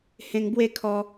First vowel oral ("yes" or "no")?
no